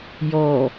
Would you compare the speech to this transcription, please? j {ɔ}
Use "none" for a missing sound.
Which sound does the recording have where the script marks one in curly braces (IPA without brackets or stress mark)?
ɔ